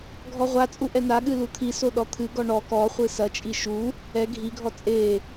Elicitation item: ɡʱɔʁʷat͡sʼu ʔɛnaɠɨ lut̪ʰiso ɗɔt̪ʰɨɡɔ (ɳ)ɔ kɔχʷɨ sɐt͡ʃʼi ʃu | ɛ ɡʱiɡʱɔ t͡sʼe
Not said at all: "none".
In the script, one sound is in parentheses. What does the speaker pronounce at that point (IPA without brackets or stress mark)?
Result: ɳ